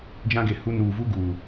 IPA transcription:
d͡ʒ ã˦ ɡ e˨ h u˦ n uː˨ v u˦ ɡ uː˨

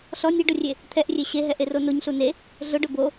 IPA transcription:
ɬ ɔ nʲ e ɖ ʊ rʲ e | t̪ʰ ɛ ʔ rʲ e ɕ e ɦ ɛ ʔ e r o n o ɲ ɬ u n e | ɮ ʊ ɖ ʊ b o

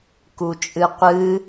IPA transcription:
k u t͡ʃʼ ɨ qʷ ɨ

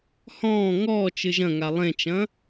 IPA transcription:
h ɔ̃ː ŋ ɔː t͡ʃ ɨ ʒ ɐ̃ ŋ a lˠ ẽ t͡ʃ ɐ̃

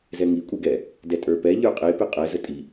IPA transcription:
z ɛ ŋ i kʷʼ e ɡ ɛ | d ɛ tʼ ə˞ p ɛ ʎ ə˞ qʼ e p e qʼ ɛ z ə tʼ i

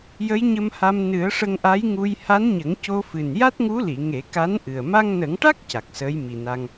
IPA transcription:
j ə˧˥ j ɲ ə˧ m h a˧ m n ɨ˨˩˦ ə̯ ʂ ə˧ ŋ ʔ a˧˥ j ŋ u˧ j h a˧˥ n ɲ ə˨˩˦ ŋ c o˧ f ɨ˨˩ n j a˦˥ t̚ ŋ u˧˥ l i˨˩˨ ŋ e˨˩˦ k a˧˥ n ʔ ɨ˨˩ ə̯ m a˧ ŋ n ə˨˩˦ ŋ ʈ a˦˥ k̚ c a˨˩ k̚ s əː˧˥ j m i˨˩ n a˧ ŋ

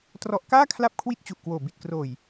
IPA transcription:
t r ɔ˦˥ ʔ k aː˥˩ kʰ l a˥˩ p̚ kʰ w i˥˩ t̚ t͡ɕ u˨˩ ʔ k w oː˨˩ b i˨˩ t̚ k r oː˨˩ j

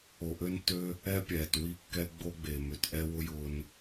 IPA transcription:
o˨ ʔ ø˦ n tː ø˦ | ɛ˦ pʲ ɛː˨ t w i˦ kː ɛ˦ ɡ͡b o˦ ɡ͡b e˨ m ø˨ t ʔ ɛ˦ w ʊ˦ j ʊː˧ n

